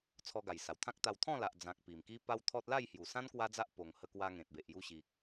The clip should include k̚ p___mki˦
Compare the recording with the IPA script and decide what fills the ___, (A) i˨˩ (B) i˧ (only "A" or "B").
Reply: A